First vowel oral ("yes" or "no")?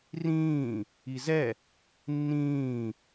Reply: no